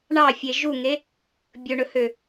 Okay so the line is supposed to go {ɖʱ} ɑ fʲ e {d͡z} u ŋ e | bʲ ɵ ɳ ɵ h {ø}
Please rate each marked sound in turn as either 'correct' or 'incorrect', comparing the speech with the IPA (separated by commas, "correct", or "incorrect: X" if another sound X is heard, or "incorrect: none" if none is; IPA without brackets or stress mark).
incorrect: ɳ, incorrect: ʒ, correct